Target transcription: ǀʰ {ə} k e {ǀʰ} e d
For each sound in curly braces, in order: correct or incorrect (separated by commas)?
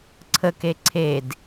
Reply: correct, correct